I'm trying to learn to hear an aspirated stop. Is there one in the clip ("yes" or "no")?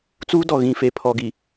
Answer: yes